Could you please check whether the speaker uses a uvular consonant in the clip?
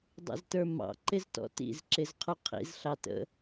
yes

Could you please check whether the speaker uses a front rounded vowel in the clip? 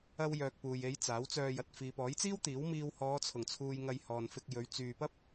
yes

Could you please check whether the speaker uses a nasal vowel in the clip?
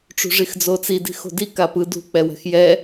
no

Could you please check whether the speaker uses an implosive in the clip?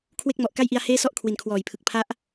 no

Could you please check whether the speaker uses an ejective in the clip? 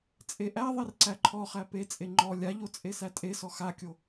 yes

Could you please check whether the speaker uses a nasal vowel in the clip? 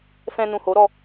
yes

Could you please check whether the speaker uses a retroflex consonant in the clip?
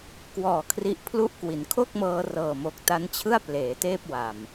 no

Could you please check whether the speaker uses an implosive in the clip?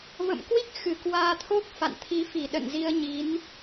yes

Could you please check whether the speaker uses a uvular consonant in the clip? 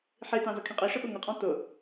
yes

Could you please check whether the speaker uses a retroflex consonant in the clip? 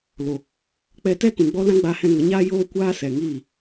no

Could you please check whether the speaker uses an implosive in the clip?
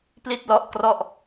no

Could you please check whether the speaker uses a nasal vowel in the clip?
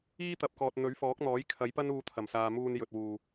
no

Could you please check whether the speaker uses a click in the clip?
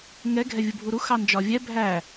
no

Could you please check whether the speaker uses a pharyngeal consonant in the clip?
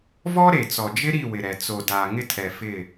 no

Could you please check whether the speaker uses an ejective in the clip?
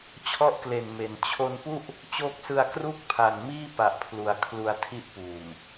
no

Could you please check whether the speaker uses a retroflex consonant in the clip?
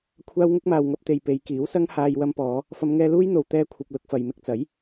no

